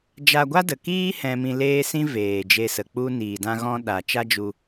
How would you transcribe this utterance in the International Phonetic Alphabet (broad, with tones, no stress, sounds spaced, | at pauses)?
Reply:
d͡ʒ a˧ ɡʷ a˦ d ə˨ k iː˦ h ɛ̃˧ m ĩ˧ l eː˦ s ĩ˦ v eː˨ d͡ʒ e˧ s ə˨ k͡p u˦ n iː˨ d ã˧ ɣ ɔ̃˧ ɗ a˨ t͡ʃ a˦ d͡ʒ u˧